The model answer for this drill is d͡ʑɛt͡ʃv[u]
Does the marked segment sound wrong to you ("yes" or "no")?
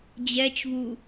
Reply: no